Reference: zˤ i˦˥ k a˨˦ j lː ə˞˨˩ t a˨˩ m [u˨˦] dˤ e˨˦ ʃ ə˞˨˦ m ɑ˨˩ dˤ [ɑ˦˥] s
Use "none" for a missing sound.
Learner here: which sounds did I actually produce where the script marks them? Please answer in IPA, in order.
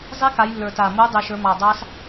u˨˦, ɑ˦˥

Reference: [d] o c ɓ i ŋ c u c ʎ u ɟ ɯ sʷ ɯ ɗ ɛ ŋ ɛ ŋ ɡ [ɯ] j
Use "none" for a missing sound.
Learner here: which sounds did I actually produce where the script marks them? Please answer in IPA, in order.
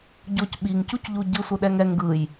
ɟ, ɯ

